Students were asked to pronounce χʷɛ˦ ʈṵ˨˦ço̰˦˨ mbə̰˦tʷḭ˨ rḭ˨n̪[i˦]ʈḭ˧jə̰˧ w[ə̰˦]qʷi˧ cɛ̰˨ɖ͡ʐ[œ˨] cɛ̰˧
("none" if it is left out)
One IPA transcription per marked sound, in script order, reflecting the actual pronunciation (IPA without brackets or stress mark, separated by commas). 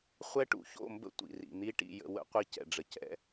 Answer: i˦, ə̰˦, ə˨